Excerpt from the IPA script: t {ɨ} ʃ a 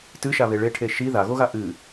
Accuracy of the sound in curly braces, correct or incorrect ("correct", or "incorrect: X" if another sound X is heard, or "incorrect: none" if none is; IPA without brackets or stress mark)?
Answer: correct